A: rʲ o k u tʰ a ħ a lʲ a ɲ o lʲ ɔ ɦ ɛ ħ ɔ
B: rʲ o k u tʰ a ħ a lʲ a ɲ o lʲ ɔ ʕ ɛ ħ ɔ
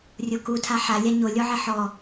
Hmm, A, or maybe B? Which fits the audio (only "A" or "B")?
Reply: B